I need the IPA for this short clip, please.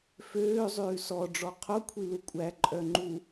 f øː zˤ ʉː s ɔ ɖ͡ʐ ɔ qʰ o kʷʰ i l u kʷʼ æ ǃʼ œ ŋ͡ǃ u

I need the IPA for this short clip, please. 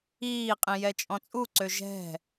iː qʼ ĩ j ɛ t͡ʃʼ ɔ̃ t͡sʼ u ǀ ø ʒ ɛ̤

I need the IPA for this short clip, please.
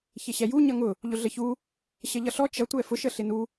ç ɪ ɕ ɛ j u ɲ ʌ ŋ ʊ | ʎ ʊ ɮ ə ç u | ɕ ə ʎ ʌ ɬ ɔ t͡ʃ ʌ tʷ ɛ f ʊ ʃ ə ɬ ɪ n u

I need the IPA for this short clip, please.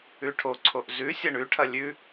ʉ ʈʰ o ǀʰ o ʔ z ʉ sʲ ɐ ɳ ʉ ʈʰ ɐ lʲ ʉ

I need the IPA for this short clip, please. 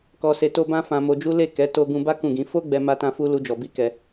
k ɔ˧ s e˧ t o˦ b ã˦ f ã˧ m o˧ d͡ʒ u˦ l e˦˨ k ɛ˨˦ t o˧ ɡ ũ˧ b a˦ k ũ˦˨ ɡ ĩ˧ f o˦ ɡ͡b ɛ˦ m a˦ t ã˦ f u˦ l u˧ d͡ʒ ɔ˨ b i˧ k ɛ˧

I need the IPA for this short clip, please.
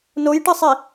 n o j ʈ ɨ sˤ i

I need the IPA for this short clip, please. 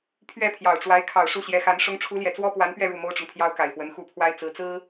pʰ ɥ ɛ˥˩ pʰ j ɑ˨˩ ʊ̯ ʈ͡ʂ w a˧˥ ɪ̯ kʰ ɑ˨˩ ʊ̯ ʂ u˥˩ ɕ j ɛ˧˥ x a˧˥ n ʂ ʊ˧˥ ŋ ʈ͡ʂʰ u˧˥ l j ɛ˨˩ t͡s w ɔ˥ p w a˧˥ n p ɥ ɛ˥˧ ɻ u˥˩ m o˥ ʊ̯ ʈ͡ʂ ʊ˨ ŋ pʰ j ɑ˥ ʊ̯ k a˨˩ ɪ̯ f w ə˧˥ n x u˥˩ pʰ w a˥ ɪ̯ t͡s ɹ̩˧˥ t͡s ɹ̩˥

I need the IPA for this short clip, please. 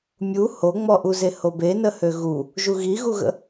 mʲ u h o ŋ͡m ɔ ʔ u z e h o b e n ə h ø ɣ u | ʒ u ɣ i ɣ u ɣ ə̰

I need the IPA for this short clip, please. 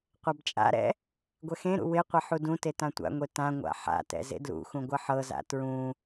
qʷ a b t͡ʃʼ a̰ ɾ ɛ̰ | ɡʷ ɛ x ẽ ɾ ṵ w ɪ qʷ ɛ ħ u d ũ t e t ã tʷ a̰ ŋʷ e t ã ŋʷ a̰ ħ a̰ t ɛ̰ z ḛ d l ṵ x ũ ɡʷ ɐ ħ ɤ z a̰ t ɹ ũ

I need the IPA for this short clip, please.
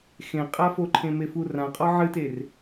x ẽ qʼ a f o ǃʰ ẽ m e f u r ã qʼ ɔ ʕ ɨ t e r

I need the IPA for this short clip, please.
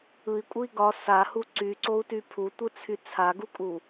ɯ i̯ kʷʼ ɯ i̯ ɡ ɒ s a h u ǀ y ǀ o u̯ t y pʰ u tʷ ɯ t͡sʰ y t͡sʰ a ɡ u kʼ u

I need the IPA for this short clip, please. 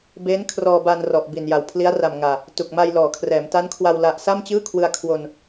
b eː˦˥ n kʰ r ɔː˧ b a˧ n r ɔ˨˩ ʔ b i˨˩ n j a˨˩ w pʰ l i˦˥ a̯ r a˨˩ m ŋ aː˨˩ | t u˨˩ k̚ m a˧ j l ɔː˩˦ kʰ r ɛː˩˦ m t a˦˥ n kʰ w a˧ w l a˦˥ ʔ s a˥˩ m t͡ɕ ɯː˥˩ kʰ w ɯ˧ a̯ kʰ w o˧ n

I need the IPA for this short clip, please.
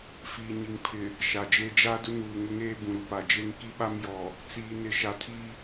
f iː˨ ɲ i˨ ŋ pʰ ɪ˨ | ʃ a˨ d͡ʒ eː˦ d͡ʒ a˦ d ʊ˦ n uː˨ ŋ ʊ˦ ŋ eː˦ b ũ˨ ɾ u˨ p a˨ d͡ʒ e˦ ŋ k i˦ ɓ a˦ m j ɔ˨ | t͡s iː˨ n ɪ˨ ʃ a˨ tʰ i˦

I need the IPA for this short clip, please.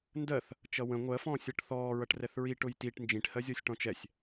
n d ɜ θ | t͡ʃ ʌ w ə̃ ŋʷ ɜ f ɔ̃ː sʲ ʌ ʈ θ ɔː ɹ ʌ ʈ r ɛ θ ɹ i ʈ ʊ j t i ʈ n d͡ʒ ĩ ʈ h ɜ zʲ ɔ sʲ ʈ ɔ̃ t͡ʃ ɛ sʲ

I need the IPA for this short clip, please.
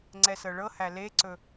ŋ͡ǀ ɛ s ɤ ɭ ɤ h æ l e ǀ ɵ

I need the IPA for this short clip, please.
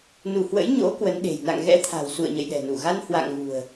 n u˧˩ h w ə̰˧˥ j ɲ o̰˧˥ k w ə˨˦ n ɗ e̤˨˩ j n a̰˧˨ ŋ ɣ ɛ̰˧˥ t̪ʰ a̤˨˩ w s ṵ˧˨ ə̯ ɲ ə̰˧˨ j ɗ ɛ̤˨˩ n u˧˩ ɣ a˧ n h w a̰˧˨ ŋ ɣ ṳ˨˩ ə̯

